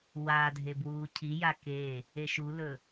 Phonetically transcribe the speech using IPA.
w a dʱ e b w uː cʰ i j a k e | e ʃ u l ɵ

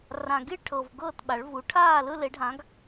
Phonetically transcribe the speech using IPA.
r ã˨ ɡ i˥˧ ɭ ʈʰ ɤ˨ v ɡ ɤː˥˧ t ɓ a˨˦ ɭ v u˨˦ ʈʰ aː˥˧ l ɯ˥˧ l e˨˦ ɖʱ ã˨˦ ɡ

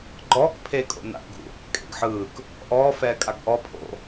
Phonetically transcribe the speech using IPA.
ɡ͡ǃ ɔː k pʰ e kʼ o̰ n a̰ k ɡ ṵ | kʼ ḛ ɡ ħ ɯː k | ʔ ɔː f ɛː kʼ a ɡ ʔ ɔ pʰ o̰

